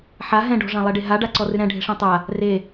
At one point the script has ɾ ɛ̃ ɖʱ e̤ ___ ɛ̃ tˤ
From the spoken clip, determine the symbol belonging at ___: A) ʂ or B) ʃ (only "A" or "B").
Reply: A